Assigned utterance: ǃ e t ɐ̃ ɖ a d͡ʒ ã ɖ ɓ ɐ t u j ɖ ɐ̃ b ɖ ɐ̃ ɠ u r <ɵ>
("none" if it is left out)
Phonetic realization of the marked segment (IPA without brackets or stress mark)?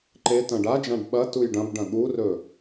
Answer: ɵ